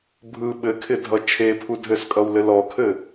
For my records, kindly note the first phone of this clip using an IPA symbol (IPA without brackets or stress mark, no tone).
bʱ